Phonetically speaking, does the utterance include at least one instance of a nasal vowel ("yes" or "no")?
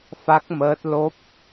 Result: no